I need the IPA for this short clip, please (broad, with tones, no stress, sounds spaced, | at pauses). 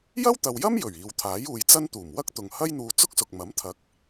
j ɐ˥ w t̪ ɐ˨ w j ɐ˥ m j ɵ˨˩ ɥ iː˨ w t̪ʰ aː˨˥ j uː˨˧ j t͡s ɐ˥ n t̪ uː˨˩ m w ɐ˥ k̚ t̪ ʊ˨ ŋ h ɐ˥ j n̪ uː˧ t͡s ʊ˥ k̚ s ʊ˨ k̚ m ɐ˨˥ m t̪ʰ ɐ˨˥ k̚